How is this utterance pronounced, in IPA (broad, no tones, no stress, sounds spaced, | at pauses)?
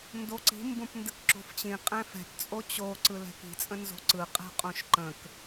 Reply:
n d o ǀ i̤ m b õ p n d ə k ǁ o̤ f t͡ɕ ĩ qʼ ɛ̃ f ɛ̤ p t͡sʼ o t͡ɕ o ǀ ɯ l ɛ̤ k i̤ t͡sʼ ə̃ n z o̤ ǀ ɯ qʼ ɛ̤ qʼ õ ʃ ǃ ə̃ k